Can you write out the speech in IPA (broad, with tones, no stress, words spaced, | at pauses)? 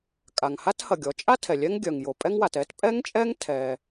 kʼa˩ŋha˥thɐ˩ ɡʲɔ˩˧t͡ʃʼa˥ tʰɛ˩lʲɛ˥ŋɡʲœ˩ŋ jo˩pʼɛ˥ŋwa˩t ɛ˥t pʼɛ˥ŋt͡ʃʼɛ˥ŋ tʰɛ˩